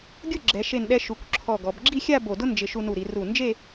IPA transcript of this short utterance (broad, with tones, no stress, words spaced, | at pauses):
ɡʲʊ˥˧ ɡ͡ǁɛ˩˧ʃe˧˩nɗɛ˧ ʃu˩˧kʷ ǁʰɔ˧˩ɡɔ˩˧b ɡ͡ǁi˥˧xʲa˥˧ bo˧˩dʊ˥ nd͡ʒɪ˧ ʃu˧nu˧˩ɾi˩˧ ru˧˩nd͡ʒe˥˧